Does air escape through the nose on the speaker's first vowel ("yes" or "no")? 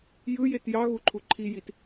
no